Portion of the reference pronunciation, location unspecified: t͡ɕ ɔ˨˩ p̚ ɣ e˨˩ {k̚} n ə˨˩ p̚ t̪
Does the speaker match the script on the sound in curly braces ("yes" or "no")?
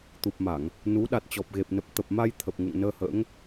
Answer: no